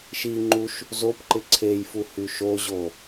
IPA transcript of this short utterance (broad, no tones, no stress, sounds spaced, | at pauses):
ʃ i ŋ͡ǃ u ʃ | z o p ǃ ɪ ǀʰ e j f u h y ʃ o ʑ o